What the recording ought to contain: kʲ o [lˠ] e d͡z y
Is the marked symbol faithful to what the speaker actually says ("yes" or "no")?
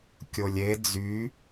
no